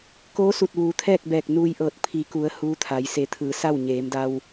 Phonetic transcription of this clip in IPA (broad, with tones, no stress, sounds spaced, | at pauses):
k oː˧˥ s u˧˩ t̚ ʋ uː˩˧ t̪ʰ ɛː˥˨ k̚ b ɛː˧˩ k̚ n uː˧ j ʔ ɤː˧˩ t̚ pʰ i˩˧ k u˩˧ ə̯ h uː˧˥ t̪ʰ a˩˧ j s e˩˧ t̪ʰ ɯː˩ s a˥˨ w ɲ eː˩˧ m d a˧ w